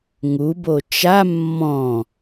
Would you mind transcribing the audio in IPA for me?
ŋ u b o t͡ʃ a mː ɔ̃

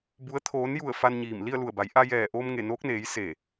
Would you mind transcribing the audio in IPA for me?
b u˩˧ ə̯ t̪ʰ oː˩˧ n j u˧˩ ə̯ f a˧ n ɲ iː˧˩ m l i˥˨ ə̯ l u˧˩ ə̯ b a˩˧ j ʔ a˧ j ɛː˧˩ ʔ oː˧ m ŋ e˧˩ n oː˧˥ k̚ n eː˩˧ j s e˧˩

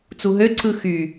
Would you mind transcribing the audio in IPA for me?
t͡s u ɦ ø ǀ ɯ x y

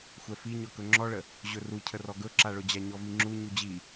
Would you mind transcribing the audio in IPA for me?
xʷ ɛ f i ɲ ɔ k ɵ ŋ͡ǁ ɔ ɭ ə | ʑ ɵ r u cʰ ə r ɔ ɡ ɵ ǁ a ɭ ɵ d͡ʑ a ɲ ɔ v i ŋ͡ǁ u ɲ u d͡ʑ i

